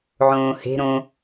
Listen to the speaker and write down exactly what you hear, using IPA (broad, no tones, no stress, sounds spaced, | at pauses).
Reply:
ʕ õː h e̤ ɾ õ